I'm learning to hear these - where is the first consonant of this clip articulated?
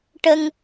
retroflex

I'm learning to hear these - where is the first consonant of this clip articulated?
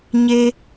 palate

